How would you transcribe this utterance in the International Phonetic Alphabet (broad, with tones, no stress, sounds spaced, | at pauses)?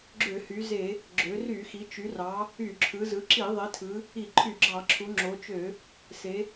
ɡ͡ǁ ø˧˩˧ h y˩˧ z e˧˩˧ | ɡ͡ǁ ø˩˧ r y˧˩˧ x i˩˧ t͡ʃ y˩˧ r ɑ˩˧ | y˧˩˧ ǁʰ ɯ˩˧ z ɯ˩˧ ǁ i˧˩˧ ðˤ i˩˧ tʰ ɯ˩˧ | i˧˩˧ ǃʰ y˧˩˧ ɡ͡ǁ ɑ˧˩˧ ǁʰ u˩˧ ŋ͡ǁ o˩˧ t͡ʃ ø˧˩˧ | s e˩˧